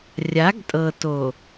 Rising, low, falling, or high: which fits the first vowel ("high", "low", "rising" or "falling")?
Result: rising